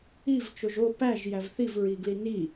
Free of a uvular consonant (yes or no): yes